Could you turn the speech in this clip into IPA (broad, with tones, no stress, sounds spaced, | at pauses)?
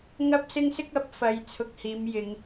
ŋ ɐ˥ p̚ s ɪ˥ ŋ s ɪ˥ k̚ ɐ˨˥ p̚ f ɐ˧ j t͡sʰ ʊ˧ k̚ h iː˨˧ m j ɪ˨˧ ŋ